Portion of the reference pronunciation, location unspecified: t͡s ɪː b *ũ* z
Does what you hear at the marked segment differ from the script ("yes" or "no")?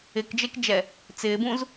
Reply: no